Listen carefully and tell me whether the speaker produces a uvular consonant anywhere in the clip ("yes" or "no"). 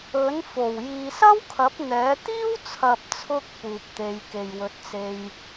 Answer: no